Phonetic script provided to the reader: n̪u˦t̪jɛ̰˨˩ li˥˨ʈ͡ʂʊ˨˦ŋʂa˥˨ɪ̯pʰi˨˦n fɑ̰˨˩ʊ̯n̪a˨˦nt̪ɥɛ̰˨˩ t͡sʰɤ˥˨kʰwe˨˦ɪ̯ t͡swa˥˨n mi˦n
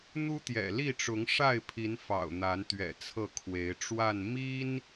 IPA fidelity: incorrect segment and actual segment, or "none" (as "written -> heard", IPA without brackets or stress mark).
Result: t͡s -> ʈ͡ʂ